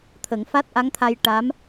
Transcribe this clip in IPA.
t̪ʰ ə˨˩˦ ŋ f a˦˥ t̚ ʔ a˧˥ ŋ t̪ʰ a˧ j ʈ a˧˥ m

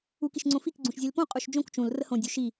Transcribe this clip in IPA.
u k i ʃ ŋ͡ǀ õ f i k ɡ͡ǀ ũ ʃ zʲ e l p õ qʼ u ʃ d͡ʒ õ k t͡ʃ ũ l r ə h õ dʲ u ʃ i

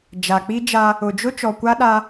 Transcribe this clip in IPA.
d͡ʒ a˨ k͡p i˦ d͡ʒ a˦ | ʊ˨ d͡ʒ ʊ˦ t͡ʃ ɔ˨ kʷ a˦ ɗ a˦

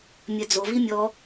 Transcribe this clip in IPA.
mʲ œ d͡z o v i mʲ ɔ

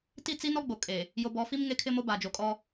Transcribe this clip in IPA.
t i˦˨ t͡s i˦ n ɔ˦ ɡ͡b o˨ kʼ e˨ | j o˨ b ɔ˨˦ f i˦ m ŋ e˦ kʰ ɪ˦ m o˦ b a˨ d͡ʒ o˨ kʼ ɔ˦

